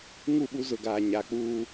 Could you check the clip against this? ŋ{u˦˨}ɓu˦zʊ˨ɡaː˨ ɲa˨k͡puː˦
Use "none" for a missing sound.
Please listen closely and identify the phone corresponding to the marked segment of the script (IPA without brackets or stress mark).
u˦˨